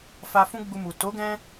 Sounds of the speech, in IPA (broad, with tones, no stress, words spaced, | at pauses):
fa˧ fũ˦ɡ͡bu˧mu˨ to˨˦ɡɛ̃˧